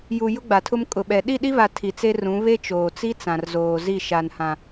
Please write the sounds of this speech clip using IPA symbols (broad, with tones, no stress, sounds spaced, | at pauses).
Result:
j u˨ j ʊ˦ ɡ͡b a˨ tʰ ʊ˦ m kʼ ʊ˨ ɓ ɛ˨ ɗ i˦˨ ɗ i˦ β a˨ tʰ i˨ t͡s e˦ r ũ˨˦ β e˦ t͡ʃ oː˨ t͡s i˦ t͡s ã˨ r z oː˨ z i˦˨ ʃ a˨ n h ã˨